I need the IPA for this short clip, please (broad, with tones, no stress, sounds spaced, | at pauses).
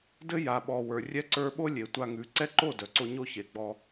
d ɘ˦ j a˨ ɓ ɔ˨ w ə˞˨ rʲ ɛ˧ ǀ ə˞˧ ɓ o˦ lʲ e˨ tʷ a˧ ŋ ʉ˨˦ ǀ ɛ˦ ǃ o˦˨ d œ˨ ǀ o˧ ɲ o˦ ç e˨ ɡ͡b ɔ˧